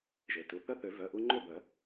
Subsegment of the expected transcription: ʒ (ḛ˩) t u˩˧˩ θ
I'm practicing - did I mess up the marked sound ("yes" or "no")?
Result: yes